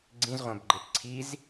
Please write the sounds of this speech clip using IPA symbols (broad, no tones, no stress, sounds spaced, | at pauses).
ɡ͡ǀ ĩ z ʁʷ æ̃ b ɡ͡ǃ e p ǀʰ i z